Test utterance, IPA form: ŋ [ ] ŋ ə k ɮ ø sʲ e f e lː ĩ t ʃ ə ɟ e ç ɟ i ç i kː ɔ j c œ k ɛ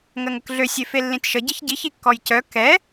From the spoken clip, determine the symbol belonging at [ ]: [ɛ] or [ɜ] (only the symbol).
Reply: ɜ